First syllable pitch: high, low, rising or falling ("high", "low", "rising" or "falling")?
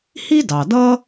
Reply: high